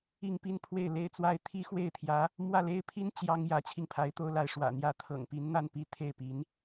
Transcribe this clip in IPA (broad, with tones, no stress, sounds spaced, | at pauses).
i˥˧ ŋ p i˥˧ n pʰ w e˥˩ ɪ̯ l e˥ ɪ̯ t͡s w a˥ ɪ̯ t̪ʰ i˥ x w e˥˩ ɪ̯ t̪ʰ j ä˧˥ | m w ä˥˩ l e˥ ɪ̯ pʰ i˥ n t͡ɕ j ɑ˥ ŋ j ä˧˥ t͡ɕʰ i˥˩ ŋ pʰ a˧˥ ɪ̯ t̪ o˥ ʊ̯ l a˥˩ ɪ̯ ʂ w ä̰˨˩ n̪ j ä˧˥ t̪ʰ ɤ̰˨˩ ŋ p i˧˥ n n̪ a˥ n p i˧˥ t̪ʰ e˥˩ ɪ̯ p i˧˥ n